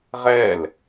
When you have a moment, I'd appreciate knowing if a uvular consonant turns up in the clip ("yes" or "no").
yes